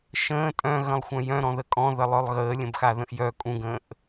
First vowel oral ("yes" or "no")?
no